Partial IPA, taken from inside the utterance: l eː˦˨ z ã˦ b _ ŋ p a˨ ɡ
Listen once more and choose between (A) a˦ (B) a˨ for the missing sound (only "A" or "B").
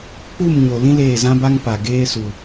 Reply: A